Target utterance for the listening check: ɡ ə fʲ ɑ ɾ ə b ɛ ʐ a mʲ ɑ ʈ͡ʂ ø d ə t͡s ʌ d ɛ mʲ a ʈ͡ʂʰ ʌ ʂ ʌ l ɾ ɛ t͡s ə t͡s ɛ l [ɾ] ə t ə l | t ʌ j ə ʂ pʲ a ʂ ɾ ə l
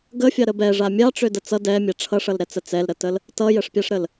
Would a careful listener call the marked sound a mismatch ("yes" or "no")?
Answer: no